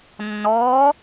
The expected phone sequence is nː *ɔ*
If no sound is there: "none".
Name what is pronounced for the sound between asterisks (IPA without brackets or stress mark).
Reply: ɔː